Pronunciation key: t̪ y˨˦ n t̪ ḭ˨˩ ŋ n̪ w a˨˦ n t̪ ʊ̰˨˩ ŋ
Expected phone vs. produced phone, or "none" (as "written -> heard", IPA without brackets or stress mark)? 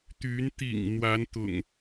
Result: none